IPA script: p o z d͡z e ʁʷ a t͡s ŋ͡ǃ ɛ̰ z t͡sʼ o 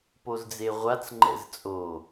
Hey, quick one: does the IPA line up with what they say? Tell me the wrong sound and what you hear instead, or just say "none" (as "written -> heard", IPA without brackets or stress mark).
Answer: none